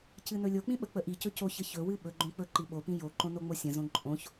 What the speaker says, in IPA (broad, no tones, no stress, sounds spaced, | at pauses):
c ɨ n ɵ lʲ o k͡p ĩ ɓ ə k͡p ə ʔ i c ɵ c o ç ə ç ɵ w ɨ ɓ ɵ ɡ͡ǃ õ k͡p ɵ ǃ i ɓ o p ĩ j o ǃ õ n o ŋ͡m o sʲ ə̃ z õ ǃʼ õ ç